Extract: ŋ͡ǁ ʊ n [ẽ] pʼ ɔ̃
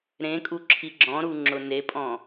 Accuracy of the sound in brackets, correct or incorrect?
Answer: incorrect